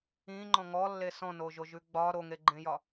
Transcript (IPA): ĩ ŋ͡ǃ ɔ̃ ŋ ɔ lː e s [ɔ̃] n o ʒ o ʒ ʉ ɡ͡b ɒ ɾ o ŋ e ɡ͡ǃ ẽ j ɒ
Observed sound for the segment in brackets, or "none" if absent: ɔ̃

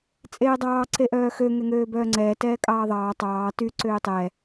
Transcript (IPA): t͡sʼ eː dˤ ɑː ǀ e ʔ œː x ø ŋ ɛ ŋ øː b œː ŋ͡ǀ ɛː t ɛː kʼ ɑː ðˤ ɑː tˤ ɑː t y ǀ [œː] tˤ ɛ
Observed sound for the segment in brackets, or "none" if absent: øː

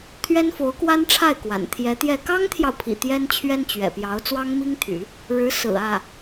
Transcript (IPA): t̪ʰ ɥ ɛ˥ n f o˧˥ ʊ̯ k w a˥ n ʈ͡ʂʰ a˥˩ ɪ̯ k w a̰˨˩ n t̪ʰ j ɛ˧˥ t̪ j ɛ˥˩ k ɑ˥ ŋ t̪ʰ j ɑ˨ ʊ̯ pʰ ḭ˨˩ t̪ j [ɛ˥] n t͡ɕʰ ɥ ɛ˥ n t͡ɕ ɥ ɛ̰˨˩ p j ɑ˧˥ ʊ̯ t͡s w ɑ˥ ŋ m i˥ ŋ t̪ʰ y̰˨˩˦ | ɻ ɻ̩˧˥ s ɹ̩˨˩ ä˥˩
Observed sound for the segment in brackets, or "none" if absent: ɛ˥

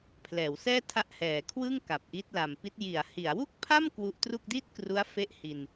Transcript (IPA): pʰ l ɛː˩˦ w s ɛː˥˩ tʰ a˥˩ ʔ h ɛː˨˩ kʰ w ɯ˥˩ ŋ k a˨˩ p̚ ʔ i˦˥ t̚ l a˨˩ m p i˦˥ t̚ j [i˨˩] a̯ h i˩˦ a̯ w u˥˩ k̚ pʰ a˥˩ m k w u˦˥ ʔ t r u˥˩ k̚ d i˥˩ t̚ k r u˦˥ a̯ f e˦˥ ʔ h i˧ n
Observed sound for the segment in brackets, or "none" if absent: i˩˦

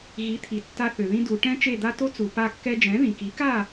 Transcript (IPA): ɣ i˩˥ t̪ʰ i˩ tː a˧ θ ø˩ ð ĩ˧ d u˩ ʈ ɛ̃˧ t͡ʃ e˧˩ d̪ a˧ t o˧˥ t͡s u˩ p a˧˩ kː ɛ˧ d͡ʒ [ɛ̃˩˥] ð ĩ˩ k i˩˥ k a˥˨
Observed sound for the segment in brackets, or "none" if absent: ɛ̃˩˥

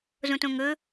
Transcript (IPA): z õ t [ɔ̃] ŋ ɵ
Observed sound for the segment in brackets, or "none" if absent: õ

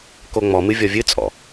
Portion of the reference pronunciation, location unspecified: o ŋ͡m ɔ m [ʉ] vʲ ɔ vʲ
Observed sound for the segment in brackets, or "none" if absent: ɨ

